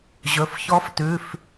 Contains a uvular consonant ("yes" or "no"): no